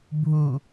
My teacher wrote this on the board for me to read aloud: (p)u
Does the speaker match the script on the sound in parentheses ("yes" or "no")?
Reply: no